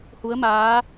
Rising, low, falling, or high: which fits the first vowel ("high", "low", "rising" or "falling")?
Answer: rising